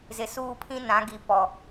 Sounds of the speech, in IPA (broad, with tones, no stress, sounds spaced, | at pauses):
z ɪ˨ s uː˦ pʰ ĩ˦ n ã˨˦ ɡ i˨ p ɔ˨